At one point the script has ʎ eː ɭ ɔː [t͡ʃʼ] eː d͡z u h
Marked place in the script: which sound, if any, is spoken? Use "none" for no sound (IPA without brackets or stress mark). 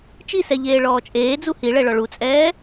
t͡ʃʼ